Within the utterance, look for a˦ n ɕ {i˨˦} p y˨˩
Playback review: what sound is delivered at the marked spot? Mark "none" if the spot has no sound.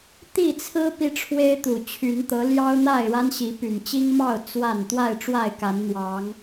i˨˦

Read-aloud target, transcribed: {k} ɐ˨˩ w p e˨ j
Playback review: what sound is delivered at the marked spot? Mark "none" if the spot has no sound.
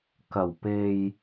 k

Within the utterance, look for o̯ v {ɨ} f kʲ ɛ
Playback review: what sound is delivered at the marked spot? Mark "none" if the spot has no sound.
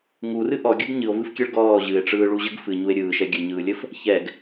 ɨ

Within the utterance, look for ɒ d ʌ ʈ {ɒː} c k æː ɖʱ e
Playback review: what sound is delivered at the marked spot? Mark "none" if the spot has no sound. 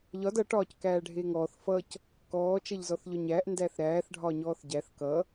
ɒː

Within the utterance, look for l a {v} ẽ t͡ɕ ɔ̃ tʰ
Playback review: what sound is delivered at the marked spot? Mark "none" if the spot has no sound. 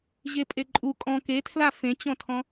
f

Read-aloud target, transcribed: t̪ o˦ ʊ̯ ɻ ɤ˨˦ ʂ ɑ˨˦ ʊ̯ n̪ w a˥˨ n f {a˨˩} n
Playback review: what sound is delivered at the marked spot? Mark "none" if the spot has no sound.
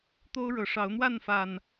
a˨˩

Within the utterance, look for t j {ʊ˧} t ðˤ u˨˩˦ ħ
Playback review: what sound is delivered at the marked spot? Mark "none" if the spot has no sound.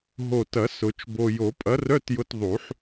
ʊ˧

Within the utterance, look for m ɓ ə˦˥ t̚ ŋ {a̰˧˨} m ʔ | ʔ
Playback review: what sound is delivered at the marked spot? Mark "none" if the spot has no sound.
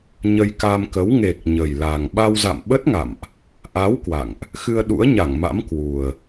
a̰˧˨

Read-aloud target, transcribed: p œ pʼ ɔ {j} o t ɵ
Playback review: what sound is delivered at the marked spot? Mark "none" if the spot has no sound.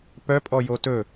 j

